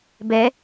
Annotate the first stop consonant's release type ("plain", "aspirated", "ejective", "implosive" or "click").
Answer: plain